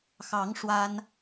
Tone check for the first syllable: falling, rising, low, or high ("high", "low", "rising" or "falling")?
rising